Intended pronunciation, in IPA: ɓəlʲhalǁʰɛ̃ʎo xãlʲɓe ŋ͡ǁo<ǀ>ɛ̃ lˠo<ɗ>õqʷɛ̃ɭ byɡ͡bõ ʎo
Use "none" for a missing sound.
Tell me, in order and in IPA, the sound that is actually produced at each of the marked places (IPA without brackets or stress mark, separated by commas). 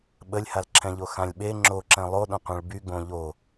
ǁ, ɗ